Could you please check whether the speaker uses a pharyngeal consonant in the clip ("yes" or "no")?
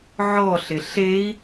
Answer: yes